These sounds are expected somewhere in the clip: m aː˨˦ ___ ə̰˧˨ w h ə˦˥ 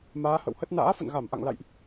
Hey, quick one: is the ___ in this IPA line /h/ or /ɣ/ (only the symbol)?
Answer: h